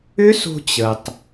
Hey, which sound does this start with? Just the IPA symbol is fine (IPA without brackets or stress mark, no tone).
ʏ